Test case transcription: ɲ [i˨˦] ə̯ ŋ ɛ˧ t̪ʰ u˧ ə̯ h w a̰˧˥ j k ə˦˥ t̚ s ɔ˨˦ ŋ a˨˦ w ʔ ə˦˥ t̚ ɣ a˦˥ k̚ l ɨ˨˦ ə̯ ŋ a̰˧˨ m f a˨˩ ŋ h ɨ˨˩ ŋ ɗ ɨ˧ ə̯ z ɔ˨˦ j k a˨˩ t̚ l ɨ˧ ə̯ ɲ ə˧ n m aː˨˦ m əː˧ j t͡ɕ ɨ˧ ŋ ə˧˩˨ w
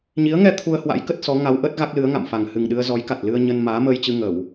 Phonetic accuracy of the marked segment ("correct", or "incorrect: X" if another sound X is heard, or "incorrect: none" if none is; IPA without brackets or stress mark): correct